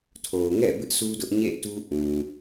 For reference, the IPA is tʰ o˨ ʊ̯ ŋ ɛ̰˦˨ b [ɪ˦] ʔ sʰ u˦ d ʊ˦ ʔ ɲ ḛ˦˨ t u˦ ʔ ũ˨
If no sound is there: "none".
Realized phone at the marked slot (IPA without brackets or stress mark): ɪ˦